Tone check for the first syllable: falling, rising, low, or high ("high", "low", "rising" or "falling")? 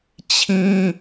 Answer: high